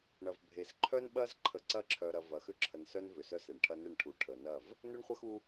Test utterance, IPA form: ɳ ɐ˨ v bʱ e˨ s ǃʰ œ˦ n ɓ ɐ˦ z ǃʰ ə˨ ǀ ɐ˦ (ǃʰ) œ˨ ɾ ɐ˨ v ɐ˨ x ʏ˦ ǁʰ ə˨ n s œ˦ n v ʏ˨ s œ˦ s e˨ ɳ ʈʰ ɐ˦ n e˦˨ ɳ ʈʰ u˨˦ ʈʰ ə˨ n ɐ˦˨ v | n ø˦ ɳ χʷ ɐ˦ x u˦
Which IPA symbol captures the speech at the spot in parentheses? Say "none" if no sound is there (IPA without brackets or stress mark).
ǁʰ